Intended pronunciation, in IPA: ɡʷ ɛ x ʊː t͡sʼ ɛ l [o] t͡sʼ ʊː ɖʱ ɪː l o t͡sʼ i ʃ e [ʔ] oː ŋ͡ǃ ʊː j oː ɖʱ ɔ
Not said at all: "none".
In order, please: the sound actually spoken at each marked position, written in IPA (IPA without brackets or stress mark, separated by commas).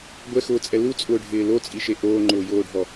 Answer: u, ʔ